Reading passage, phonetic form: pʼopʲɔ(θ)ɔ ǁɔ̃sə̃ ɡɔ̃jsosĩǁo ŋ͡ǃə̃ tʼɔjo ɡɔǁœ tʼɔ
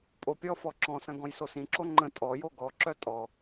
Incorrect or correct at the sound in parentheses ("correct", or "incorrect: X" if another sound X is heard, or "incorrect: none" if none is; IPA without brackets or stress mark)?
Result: incorrect: f